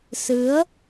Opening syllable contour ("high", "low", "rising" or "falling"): rising